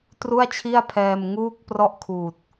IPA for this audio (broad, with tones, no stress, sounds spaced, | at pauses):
t r u˥˩ a̯ t͡ɕʰ i˥˩ a̯ pʰ ɛː˧ m ŋ uː˥˩ k̚ p r ɔ˥˩ ʔ kʰ uː˨˩ t̚